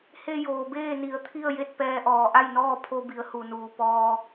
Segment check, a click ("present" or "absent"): absent